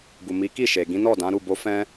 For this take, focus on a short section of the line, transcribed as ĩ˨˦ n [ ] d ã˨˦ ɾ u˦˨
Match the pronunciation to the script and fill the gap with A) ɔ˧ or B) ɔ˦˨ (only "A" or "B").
B